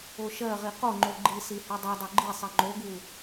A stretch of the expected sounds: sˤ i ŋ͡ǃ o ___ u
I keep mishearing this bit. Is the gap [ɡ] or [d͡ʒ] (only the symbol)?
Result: ɡ